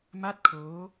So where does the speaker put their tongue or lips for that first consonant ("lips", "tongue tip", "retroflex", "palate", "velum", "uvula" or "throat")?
lips